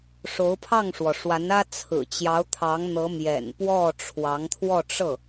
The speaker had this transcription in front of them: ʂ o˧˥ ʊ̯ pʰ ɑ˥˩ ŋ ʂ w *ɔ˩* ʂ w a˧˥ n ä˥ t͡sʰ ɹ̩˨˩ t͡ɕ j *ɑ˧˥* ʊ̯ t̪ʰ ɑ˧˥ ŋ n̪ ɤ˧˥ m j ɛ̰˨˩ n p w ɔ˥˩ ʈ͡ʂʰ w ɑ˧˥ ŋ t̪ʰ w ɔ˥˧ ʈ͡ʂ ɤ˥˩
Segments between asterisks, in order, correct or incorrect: correct, correct

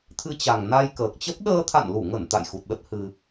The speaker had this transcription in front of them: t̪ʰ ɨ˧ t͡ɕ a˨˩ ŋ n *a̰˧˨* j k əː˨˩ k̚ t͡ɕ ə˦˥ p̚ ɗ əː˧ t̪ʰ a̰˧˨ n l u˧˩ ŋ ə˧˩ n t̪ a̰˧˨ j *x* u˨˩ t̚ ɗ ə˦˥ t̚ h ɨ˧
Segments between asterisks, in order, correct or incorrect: incorrect: a˧, correct

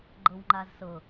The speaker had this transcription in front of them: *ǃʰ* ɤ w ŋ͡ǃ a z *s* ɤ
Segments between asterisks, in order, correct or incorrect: incorrect: ɡ͡ǃ, correct

